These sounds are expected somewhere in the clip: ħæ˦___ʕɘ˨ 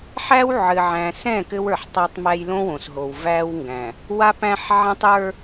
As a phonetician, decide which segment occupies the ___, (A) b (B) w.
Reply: B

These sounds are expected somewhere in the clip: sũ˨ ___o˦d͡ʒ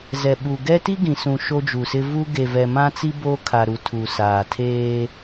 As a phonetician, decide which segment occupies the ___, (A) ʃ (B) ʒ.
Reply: A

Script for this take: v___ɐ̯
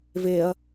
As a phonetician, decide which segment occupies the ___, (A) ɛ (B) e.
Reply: B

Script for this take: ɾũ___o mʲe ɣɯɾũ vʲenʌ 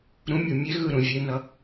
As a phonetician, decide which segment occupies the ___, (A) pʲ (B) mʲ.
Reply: B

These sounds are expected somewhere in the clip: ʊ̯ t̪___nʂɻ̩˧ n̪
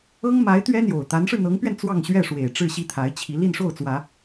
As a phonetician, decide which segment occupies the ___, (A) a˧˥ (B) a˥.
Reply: A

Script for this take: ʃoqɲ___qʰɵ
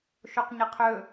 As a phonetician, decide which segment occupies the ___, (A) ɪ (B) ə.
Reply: A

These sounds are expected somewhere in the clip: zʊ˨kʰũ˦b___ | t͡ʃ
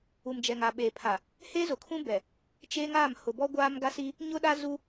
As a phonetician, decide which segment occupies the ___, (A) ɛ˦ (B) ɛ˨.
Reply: B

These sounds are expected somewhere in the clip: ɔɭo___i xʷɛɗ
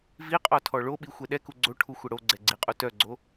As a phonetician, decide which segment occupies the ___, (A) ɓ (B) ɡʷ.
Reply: A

